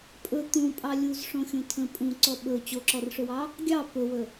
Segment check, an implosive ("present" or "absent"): present